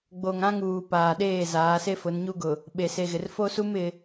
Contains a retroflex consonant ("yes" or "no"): no